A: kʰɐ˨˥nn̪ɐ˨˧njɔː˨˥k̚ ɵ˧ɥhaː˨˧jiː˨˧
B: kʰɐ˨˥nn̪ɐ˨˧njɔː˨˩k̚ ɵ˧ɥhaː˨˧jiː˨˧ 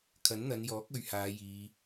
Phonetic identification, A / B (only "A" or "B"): A